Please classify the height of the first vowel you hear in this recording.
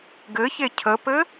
mid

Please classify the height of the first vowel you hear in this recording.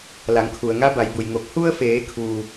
low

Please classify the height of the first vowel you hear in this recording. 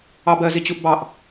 low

